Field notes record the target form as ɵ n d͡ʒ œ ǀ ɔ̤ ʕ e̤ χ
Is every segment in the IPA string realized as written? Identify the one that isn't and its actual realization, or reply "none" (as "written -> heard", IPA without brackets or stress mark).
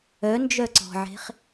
ɵ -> œ